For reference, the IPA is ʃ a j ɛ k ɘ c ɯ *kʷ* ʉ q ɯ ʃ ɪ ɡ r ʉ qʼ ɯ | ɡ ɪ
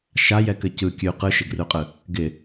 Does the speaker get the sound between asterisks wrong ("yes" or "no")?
yes